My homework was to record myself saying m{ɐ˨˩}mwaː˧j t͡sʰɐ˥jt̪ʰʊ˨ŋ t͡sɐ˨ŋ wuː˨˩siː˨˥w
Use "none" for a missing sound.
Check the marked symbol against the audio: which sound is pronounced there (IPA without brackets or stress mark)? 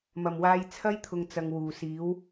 ɐ˨˩